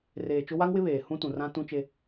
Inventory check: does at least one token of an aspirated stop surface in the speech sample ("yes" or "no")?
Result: no